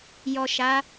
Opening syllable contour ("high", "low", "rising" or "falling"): low